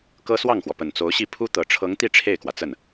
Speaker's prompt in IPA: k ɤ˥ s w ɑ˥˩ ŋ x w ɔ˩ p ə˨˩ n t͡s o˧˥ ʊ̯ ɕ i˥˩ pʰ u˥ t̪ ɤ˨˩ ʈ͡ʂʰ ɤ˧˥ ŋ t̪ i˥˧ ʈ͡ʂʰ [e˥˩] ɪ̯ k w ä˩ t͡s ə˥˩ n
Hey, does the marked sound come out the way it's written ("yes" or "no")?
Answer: yes